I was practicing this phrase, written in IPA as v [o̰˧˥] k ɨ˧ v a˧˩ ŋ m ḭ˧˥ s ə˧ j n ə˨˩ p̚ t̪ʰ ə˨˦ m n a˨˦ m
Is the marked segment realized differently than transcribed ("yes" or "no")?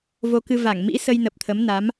yes